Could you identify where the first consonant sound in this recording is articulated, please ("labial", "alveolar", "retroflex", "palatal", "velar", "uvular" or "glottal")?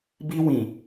labial